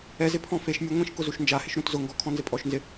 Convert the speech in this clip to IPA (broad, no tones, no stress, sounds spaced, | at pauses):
ɛ z ɪ pʰ ɔ̃ f e ʃ mʲ ɛ ŋʷ ĩ ʃ k ʊ z u ʃ n d͡ʒ a h ɪ ʃ ɾ ũ t z ʊ ŋ ɡ ɔ kʰ ɔ̃ n z ɪ pʼ ɔ ʃ n z ɪ